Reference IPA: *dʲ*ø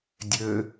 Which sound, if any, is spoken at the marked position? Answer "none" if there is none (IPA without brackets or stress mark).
dʲ